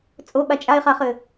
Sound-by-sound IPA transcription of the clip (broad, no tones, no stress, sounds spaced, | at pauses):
t͡sʼ o ɓ a t͡ʃʼ a e̯ χ a χ ɘ